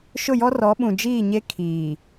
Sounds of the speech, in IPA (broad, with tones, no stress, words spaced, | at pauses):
ʃʊ˦˨jɔ˦ rɔ˨˦ɓũ˨d͡ʒiː˦˨ɲe˦ kʰiː˨